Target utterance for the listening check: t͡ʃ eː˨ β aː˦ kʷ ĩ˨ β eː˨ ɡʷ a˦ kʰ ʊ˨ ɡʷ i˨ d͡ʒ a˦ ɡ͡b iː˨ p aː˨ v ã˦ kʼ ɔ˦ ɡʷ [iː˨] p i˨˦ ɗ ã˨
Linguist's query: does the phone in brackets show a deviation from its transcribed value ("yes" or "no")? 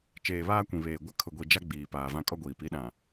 no